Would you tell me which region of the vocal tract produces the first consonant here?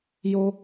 palate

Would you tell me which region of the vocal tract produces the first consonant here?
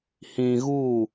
throat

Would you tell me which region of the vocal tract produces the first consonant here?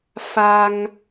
lips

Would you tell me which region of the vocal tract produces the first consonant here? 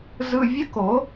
tongue tip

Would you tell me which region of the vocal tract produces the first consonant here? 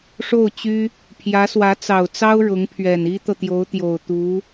retroflex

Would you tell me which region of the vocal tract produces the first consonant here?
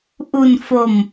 throat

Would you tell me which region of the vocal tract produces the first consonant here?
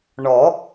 retroflex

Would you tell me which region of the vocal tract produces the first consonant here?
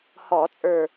throat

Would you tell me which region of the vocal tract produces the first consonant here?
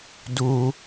tongue tip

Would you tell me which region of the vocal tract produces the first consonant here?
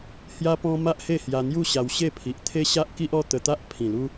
throat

